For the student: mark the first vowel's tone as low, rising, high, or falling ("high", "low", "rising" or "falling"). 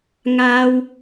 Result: low